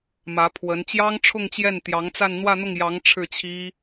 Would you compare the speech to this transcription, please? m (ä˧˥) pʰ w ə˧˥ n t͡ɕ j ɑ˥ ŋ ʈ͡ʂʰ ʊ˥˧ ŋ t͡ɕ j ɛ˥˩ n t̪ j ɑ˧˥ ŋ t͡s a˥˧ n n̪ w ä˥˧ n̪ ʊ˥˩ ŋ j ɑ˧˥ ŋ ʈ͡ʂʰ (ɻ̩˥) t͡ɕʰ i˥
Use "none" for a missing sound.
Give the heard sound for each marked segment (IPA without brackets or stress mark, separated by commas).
ä˧˥, ɻ̩˥˩